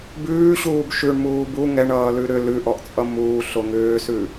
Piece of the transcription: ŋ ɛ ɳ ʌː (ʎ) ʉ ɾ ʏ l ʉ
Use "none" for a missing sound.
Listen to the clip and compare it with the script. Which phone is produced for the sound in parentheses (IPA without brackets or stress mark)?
l